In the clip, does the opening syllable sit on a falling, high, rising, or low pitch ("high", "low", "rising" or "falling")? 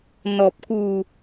low